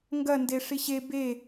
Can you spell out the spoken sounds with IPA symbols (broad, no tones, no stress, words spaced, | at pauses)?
ŋɡɐ ndeʂiɕe be